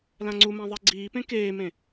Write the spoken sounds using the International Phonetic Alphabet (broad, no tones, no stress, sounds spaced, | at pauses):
l ã ŋ͡ǀ u m ã ðˤ ɛ ɡ͡ǀ iː p ẽ k eː m ẽ